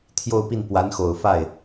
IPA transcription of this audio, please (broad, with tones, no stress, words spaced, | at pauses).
t̪ʰjo˥˧ʊ̯pi˥˩n pwa˧˥nxo˨˩ʊ̯fa˥˩ɪ̯